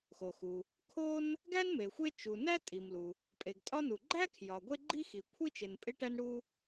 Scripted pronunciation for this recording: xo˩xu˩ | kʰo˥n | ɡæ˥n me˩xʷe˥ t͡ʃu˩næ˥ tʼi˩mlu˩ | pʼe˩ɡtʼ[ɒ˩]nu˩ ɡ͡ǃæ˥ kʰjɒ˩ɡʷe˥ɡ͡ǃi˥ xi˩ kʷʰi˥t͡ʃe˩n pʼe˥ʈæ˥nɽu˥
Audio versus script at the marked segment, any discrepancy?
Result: yes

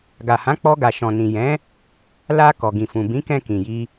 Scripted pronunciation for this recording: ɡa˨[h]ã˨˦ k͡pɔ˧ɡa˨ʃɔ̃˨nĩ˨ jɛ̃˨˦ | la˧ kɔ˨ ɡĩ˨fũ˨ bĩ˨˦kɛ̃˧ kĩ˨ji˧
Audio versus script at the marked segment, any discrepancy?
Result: no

